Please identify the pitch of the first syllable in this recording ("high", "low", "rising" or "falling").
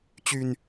low